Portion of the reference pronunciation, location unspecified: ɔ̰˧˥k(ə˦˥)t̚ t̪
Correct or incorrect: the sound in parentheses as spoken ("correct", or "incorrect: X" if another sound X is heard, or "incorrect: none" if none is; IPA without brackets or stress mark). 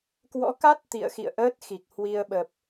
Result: incorrect: a˦˥